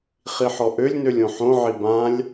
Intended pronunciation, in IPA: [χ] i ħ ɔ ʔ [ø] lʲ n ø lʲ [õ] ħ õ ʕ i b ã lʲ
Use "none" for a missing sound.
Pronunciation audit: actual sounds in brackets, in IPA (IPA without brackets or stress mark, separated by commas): χ, ø, õ